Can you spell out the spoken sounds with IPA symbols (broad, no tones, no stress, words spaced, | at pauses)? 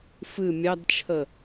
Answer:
fɨ mʲɑdt͡ʃʰə